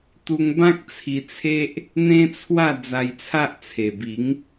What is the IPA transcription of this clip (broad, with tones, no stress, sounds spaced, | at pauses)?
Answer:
t̪ u˧ ŋ b ã˦ k̚ t͡sʰ i˧ t͡sʰ e˦ ʔ | n̪ ẽ˦ t͡sʰ w a˥˧ d͡z a˧ j t͡sʰ a˦ ʔ t͡sʰ e˨˩ b i˨˦ ŋ